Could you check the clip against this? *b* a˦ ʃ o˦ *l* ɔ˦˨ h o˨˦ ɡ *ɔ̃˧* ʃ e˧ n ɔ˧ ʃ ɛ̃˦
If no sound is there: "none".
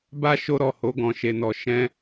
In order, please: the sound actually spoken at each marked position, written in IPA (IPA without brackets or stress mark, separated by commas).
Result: b, ɾ, ɔ̃˧